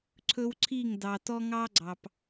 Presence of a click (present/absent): present